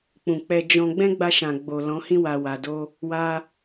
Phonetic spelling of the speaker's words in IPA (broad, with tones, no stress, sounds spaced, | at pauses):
k͡p ũ˨ k͡p ɛ˧ d͡ʒ ɔ̃˧ ɡ͡b ɛ̃˦ ɡ͡b a˧ ʃ ã˨ ɡ͡b o˨ l ɔ̃˨˦ h ĩ˦ w a˧ w a˧ d o˦ | w a˧